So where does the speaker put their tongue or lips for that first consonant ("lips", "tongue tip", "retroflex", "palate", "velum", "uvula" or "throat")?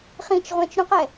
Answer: uvula